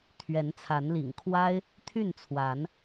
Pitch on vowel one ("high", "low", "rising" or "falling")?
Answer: rising